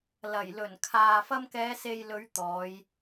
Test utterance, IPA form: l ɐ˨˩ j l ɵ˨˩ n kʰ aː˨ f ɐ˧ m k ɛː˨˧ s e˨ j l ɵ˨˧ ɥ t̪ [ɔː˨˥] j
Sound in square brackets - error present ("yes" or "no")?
yes